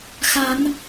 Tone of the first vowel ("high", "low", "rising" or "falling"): rising